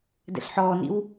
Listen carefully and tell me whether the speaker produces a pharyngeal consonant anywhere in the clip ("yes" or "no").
yes